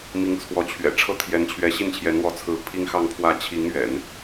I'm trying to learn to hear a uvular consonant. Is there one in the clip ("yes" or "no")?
no